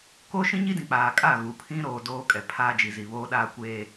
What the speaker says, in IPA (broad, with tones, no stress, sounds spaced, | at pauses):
k oː˦ ʃ ĩ˦ ɲ i˦ d ĩ˨ k͡p aː˨ kʼ a˦˨ ɣ u˨ pʰ ĩ˦ ɾ oː˨ d oː˦ kʼ ɛ˨ pʰ aː˦ d͡ʒ i˨ z i˨ β oː˦ ɗ aː˦ kʷ eː˦